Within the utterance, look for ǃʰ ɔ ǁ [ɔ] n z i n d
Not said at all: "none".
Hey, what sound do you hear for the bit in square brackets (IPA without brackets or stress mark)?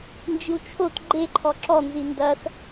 ɔ